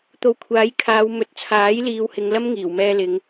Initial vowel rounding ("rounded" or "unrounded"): rounded